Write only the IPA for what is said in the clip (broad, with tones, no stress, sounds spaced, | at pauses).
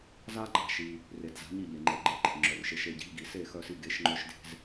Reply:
z a˥ ɡ͡ǃ a̤˥˩ ʃ i˩ | r e˩ d z a̤˩˥ ɲ i˥˩ ʎ e˩ ŋ͡ǃ e˩ ɡ͡ǃ e˧ ǃ e̤˩ ŋ͡ǁ œ˩ r ʃ e˩˥ ʃ e˥˩ ɟ i̤˥ ʎ ɡ i˩ s e˥˩ x œ˧ s i˧ ɡ e˩˥ ʃ ŋ͡ǃ œ˧ ʃ d e̤˧ z